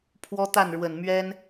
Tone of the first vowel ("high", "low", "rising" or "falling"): high